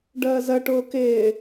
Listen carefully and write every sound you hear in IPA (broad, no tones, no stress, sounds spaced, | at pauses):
ɖ əː z ə ʈ ʊː k ɪː